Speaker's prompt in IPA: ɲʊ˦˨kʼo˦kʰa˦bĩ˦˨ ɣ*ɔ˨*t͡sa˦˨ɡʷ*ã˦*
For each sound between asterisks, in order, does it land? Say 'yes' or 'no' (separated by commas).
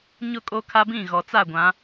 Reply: yes, no